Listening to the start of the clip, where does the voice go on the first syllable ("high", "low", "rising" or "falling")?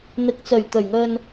rising